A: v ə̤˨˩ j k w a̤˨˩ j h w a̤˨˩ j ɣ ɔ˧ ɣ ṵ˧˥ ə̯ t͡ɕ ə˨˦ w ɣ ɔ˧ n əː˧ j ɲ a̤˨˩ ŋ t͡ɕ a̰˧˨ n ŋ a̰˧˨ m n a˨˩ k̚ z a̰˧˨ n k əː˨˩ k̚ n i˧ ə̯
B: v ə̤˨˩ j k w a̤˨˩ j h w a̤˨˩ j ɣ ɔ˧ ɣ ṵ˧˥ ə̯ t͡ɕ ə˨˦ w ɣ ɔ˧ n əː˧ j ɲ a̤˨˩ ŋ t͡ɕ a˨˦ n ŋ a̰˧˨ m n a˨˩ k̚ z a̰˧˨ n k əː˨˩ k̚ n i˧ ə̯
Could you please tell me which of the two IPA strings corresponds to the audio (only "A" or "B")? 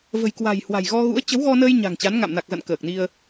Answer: B